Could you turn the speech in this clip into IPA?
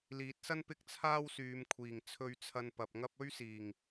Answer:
liː˨˥t̚sɐ˥n pɪ˥k̚t͡sʰaː˥wsyː˨˧mkʷʰiː˨˩ŋ t͡sʰɵ˧ɥt͡sʰɐ˧n pɐ˨p̚ŋɐ˥p̚ ɵ˥ɥsiː˨˩ŋ

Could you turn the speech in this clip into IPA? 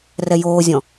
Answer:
rɛjoːzʲɔ̃

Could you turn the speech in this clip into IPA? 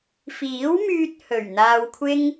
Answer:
fiː˨˥wmyː˧t̚ hɵ˨˩ɥn̪aː˧wkʷʰɪ˥ŋ

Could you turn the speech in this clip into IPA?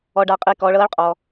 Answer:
ɔ˧ɖa˧qʼi˧ kɔː˧ɭɤː˧˥ɭqʼɔ˧

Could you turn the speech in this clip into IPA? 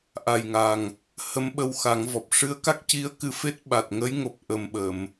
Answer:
ʔa˨˩jŋa˨˩ŋ | hə˧˥mɓə˧wxa˨˩˦ŋ vɔ˨˩p̚ ʂɨ˧˥ə̯ka˦˥k̚ ci˧ə̯ kɨ˧fe˦˥t̚ ɓa˨˩t̚ŋə˧˥jŋo˨˩p̚ ʔə˨˩mɓə˨˩˨m

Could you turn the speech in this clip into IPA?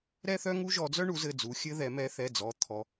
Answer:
ɾɛ˥θœ˥ŋu˥ ʒɔ˨˦d͡zœ˥ɳu˨˦zɘ˩˧˩ d͡zu˨˦xʲɘ˥ðɛ˨˦ mɛ˨˦θɛ˩˧˩d͡zɔ˨˦ t̪ʰɔ˨˦

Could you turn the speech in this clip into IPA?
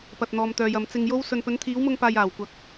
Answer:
pɐ˨t̚n̪ɔː˨mt̪œː˨jɐ˨m t͡sɪ˧ŋjo˥wsɵ˧n pɵ˨˧nt̪ʰiː˨˧wmʊ˧ŋpaː˨j aː˨˩wkʷɐ˨˥k̚

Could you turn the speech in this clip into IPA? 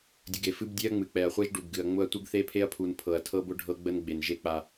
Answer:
dʲə˨ɡe˨ fɨ˦b dʲe˦ɐ̯ŋ͡mɨ˨k͡pɛ˨ɐ̯χʷe˦ʒ ɖu˨bɡɨ˨ɐ̯ ŋ͡mʊ˦ɐ̯tʷɨ˦ɡ θe˦pʰe˦ɐ̯pʰu˨n pʰɤ˨ɐ̯tʰɤ˦bʊ˦ ɖʱɤ˦ɡ͡bə˦n ɡ͡be˨nʒe˦k͡pa˨

